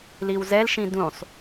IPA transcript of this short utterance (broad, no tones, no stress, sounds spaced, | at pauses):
l i w z ɛ l ʃ ĩ d ũ sˤ